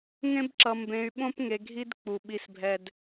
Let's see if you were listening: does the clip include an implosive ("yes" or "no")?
yes